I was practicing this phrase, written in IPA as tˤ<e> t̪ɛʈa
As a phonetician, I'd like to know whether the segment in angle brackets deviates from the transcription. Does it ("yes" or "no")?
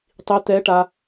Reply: yes